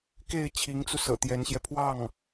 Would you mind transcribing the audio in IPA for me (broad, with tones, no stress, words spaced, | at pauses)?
ke˥˩ɪ̯ t͡ɕʰi˧˥ŋt͡su˧ sɤ̰˨˩t̪jɛ˧˥nɕjɛ˧ pʰwɑ˥˩ŋ